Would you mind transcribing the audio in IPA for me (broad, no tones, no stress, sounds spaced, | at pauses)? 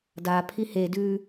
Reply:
d a pʰ i h e d ʉː